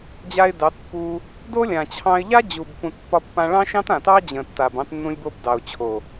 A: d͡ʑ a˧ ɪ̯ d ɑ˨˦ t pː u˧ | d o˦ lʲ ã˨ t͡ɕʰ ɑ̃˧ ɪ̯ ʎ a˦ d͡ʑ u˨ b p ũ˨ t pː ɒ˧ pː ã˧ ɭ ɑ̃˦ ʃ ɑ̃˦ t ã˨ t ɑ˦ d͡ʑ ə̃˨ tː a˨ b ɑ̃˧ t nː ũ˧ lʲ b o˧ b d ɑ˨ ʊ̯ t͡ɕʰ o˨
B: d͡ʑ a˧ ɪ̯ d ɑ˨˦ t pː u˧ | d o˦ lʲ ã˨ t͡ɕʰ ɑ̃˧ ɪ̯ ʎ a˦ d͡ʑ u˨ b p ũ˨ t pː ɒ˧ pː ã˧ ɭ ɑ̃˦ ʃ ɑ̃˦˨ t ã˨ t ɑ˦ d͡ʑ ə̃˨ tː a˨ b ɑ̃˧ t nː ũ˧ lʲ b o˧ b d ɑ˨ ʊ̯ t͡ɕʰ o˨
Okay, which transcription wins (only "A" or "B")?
A